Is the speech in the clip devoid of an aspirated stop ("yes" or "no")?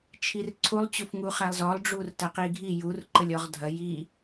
no